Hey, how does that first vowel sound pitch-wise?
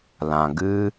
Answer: low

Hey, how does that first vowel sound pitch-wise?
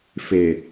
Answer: low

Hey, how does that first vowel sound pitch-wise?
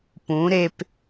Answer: rising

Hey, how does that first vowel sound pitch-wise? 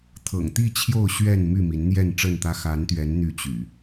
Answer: low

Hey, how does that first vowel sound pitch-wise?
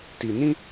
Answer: low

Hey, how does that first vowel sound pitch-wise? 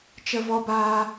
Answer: high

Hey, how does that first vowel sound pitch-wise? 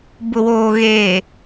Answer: low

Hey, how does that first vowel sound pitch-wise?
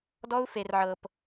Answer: high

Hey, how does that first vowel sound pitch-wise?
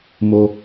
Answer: high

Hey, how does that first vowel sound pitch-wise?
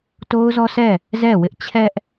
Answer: high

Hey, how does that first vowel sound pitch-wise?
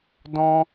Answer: high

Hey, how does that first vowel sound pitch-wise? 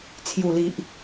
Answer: low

